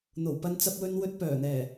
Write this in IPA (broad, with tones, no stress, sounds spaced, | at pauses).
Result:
n̪ o˨˩ w p ɐ˧ n t͡s ɐ˧ p̚ w ɵ˧ n w ɵ˧ t̚ p œː˨˩ n̪ ɛː˨˩